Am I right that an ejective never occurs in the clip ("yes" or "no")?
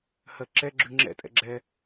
no